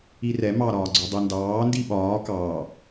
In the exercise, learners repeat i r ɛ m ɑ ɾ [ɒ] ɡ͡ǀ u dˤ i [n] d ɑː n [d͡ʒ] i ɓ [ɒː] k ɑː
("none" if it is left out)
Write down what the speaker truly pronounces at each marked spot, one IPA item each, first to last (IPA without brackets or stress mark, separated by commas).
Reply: ɒː, n, d, ɒː